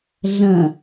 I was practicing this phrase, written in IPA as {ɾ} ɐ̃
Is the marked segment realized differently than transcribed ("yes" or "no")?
yes